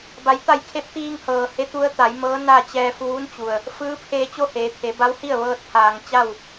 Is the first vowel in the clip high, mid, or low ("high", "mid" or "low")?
low